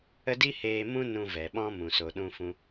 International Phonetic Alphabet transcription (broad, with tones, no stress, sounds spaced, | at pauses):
ə˦ d i˦ h eː˧ m ũ˦ n ũ˧ v ɛ˨ ɓ ɔ̃˦ m ũ˨ s o˨ ɗ ũ˧ f ũ˧